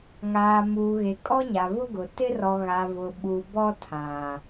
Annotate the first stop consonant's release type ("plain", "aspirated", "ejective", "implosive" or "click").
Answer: ejective